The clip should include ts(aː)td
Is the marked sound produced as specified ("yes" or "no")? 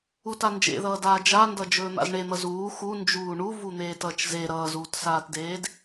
yes